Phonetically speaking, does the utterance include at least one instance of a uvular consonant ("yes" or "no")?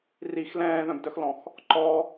no